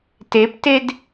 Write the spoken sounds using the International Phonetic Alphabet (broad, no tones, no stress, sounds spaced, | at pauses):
t e p t e d